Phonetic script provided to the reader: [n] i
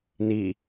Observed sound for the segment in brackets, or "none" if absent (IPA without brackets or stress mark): n